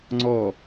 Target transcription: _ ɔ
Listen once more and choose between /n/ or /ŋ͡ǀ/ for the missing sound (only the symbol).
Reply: ŋ͡ǀ